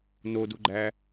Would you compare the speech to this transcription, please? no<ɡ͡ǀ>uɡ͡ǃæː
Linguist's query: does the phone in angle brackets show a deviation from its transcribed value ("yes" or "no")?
yes